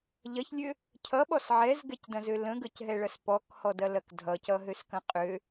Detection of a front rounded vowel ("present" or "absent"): present